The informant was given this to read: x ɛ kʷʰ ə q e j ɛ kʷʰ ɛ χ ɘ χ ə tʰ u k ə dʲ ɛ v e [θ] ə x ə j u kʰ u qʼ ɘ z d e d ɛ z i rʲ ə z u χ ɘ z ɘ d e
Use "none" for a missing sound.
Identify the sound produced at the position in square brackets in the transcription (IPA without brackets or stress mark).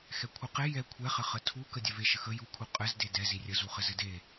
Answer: ʃ